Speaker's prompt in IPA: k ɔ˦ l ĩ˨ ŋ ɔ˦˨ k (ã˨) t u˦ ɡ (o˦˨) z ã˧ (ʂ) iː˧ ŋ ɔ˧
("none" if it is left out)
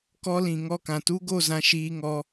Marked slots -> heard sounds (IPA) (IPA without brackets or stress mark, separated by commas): ã˨, o˦˨, ʃ